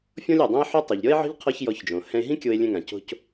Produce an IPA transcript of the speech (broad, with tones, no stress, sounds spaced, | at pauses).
fʲ ɔ̃˥ lʲ ɛ˩ dˤ ɛ̃˥ e̯ ħ o˥ tˤ u˩ ʎ ɾʲ ɔ˥ e̯ ʕ ɔ̤˥ ʎ qʰ ɔ˥ ç j ɔ˧ ç d͡ʒ õ˩ h ɛ̃˧ e̯ ɦ ĩ˥ kʲ o˧ e̯ lʲ ɛ̃˧ ŋ ã˩ c o̤˧ c